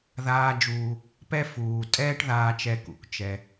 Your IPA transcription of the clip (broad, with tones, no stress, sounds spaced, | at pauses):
ð aː˨ d͡ʒ uː˩ | p ɛ˦ f uː˩ tʼ ɛː˦ ʈ ð aː˨ t͡ʃ ɛ˨ k ṵ˩ k t͡ʃ ɛ˨